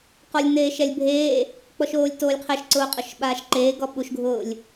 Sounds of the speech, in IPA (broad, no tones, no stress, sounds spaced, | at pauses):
q ɔ lʲ n eː ʃ ɛ lʲ bʱ eː | k͡p ɔ ʃ oː lʲ t oː lʲ qʰ ɛ ʃ ǀ ʊː qʼ ʊ ʃ ɓ aː ʃ ǃ eː ɡ ɔ ɓ u ʃ ɡʱ ʊː lʲ